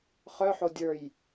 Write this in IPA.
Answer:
χœħo dʲə˞j

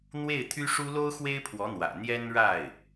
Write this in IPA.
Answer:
n̪we˥˩ɪ̯t̪ʰy˥ʂu˥ lo˥ʊ̯xwe˥ɪ̯pʰwɔ˧˥n̪wä̰˨˩ n̪jɛ˥nɻa˥˩ɪ̯

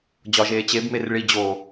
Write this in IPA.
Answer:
d͡ʑɒʒeː t͡ɕebmer ɭi d͡ʑo

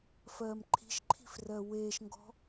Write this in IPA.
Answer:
fɜːmǃʰi̤ʃǃʰi̤f rɜweːʃŋɡɔ̤

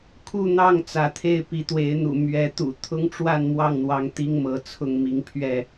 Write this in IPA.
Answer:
kʰu˥˨n̪ɑ˥˨ŋ t͡sä˨˦t̪ʰe˥˨ɪ̯ pi˨˦t̪we˨˦ɪ̯n̪ṵ˨˩ mɥɛ˨˦t̪ṵ˨˩ t̪ʰʊ˦ŋʈ͡ʂwa˥˨n mwɑ˥˨ŋn̪wɑ˨˦ŋ t̪i˦ŋmɤ˨˦t͡sʰʊ˥˨ŋ mi˨˦ŋpʰɥɛ˥˨

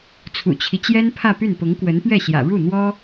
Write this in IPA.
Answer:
t͡sʰṵ˨˩t͡ɕʰi˦t͡ɕjɛ˥n pʰä˥˧py˥˩n pʊ˧˥ŋkwə˧˥npɥɛ˥˩ɕjä̰˨˩ ɻu˥˩n̪wɔ˥

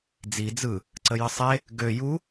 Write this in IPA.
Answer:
d͡zi d͡zɯ | ǀəjəsˤe | ɡø ju

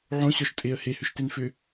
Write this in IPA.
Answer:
ʕõɕɔʃ tʼeə̯ hehʏʃten fʏ

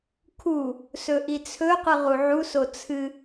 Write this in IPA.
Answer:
kʰu | sɵʔit͡sʰɵqɨ ʁuʕuso t͡sʰɨ

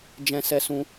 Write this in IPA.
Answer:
d͡ʒɛ̃˧sɛ˧sũ˧

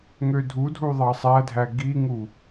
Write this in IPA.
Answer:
ŋødʱudʱu ðˤɑsˤædʱæ ɡiŋu

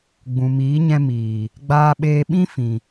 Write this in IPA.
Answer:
ɡ͡bũ˨miː˨˦ɲɛ̃˧ miː˨ | ɡ͡baː˧ɓeː˧ɓĩ˦ fĩ˨

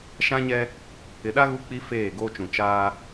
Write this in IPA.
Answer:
ʃã˦ɲɛ˦ | ɪ˨ɗa˦ ɣu˦k͡pi˦ feː˦˨ɡoː˦t͡ʃũ˨ t͡ʃaː˦

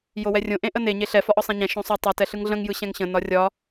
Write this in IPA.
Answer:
jowɛrʲõ ʔẽʔəne ɲeɬɛ fɒʔɒsˤɛ̃ɲɛ̃ ʃõsˤo tˤɯ tɛɬɯŋɮə̃ŋ jɯɕɛ̃ŋɕə̃ nɒrʲɒ

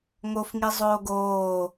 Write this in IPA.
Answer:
ŋofŋi zˤoːɡoː

